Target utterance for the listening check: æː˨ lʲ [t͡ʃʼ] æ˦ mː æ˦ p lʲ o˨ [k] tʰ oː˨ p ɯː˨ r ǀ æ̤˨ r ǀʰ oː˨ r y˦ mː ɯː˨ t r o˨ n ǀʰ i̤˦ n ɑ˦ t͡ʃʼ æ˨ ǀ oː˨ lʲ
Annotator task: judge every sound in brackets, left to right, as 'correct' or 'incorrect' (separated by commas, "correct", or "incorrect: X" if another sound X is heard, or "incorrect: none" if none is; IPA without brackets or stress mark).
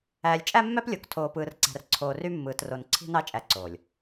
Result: correct, correct